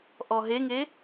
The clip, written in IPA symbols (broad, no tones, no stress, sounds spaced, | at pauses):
ʔ ɔ ɦ e ŋ e